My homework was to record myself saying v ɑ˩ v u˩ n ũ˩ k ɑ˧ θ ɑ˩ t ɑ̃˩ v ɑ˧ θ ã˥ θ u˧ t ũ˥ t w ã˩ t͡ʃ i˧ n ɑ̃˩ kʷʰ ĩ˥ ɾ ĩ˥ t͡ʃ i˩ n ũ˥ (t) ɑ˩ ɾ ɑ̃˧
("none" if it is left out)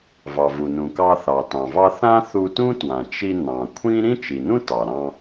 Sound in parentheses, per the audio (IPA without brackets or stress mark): t